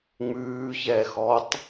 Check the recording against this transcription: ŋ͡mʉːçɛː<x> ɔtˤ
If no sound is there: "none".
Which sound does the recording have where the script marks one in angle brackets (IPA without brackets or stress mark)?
x